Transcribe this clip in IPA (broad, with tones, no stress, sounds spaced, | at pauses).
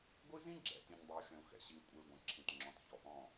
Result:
ɡʷ i˦ z ĩ˦ ɡ͡ǁ ɛ̰˨ t ĩ˨ ɲ dˤ ɨ˨ u̯ ʃ ɛ̃˨ u̯ x ɛ̰˨ ɕ i˨ u̯ kʷʼ ɛ˨ i̯ ɡʷ ɛ̃˨ ǁʰ ĩ˨ t ŋ͡ǁ ɔ̃˨ t ç ɔ˨ ʔ ɔ̃˦˨